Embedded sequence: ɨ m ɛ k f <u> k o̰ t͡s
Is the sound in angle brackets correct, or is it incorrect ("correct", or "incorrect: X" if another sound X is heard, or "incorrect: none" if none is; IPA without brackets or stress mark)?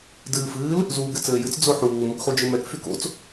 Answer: incorrect: y